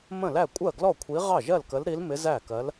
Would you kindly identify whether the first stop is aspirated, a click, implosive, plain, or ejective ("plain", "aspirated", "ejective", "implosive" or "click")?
ejective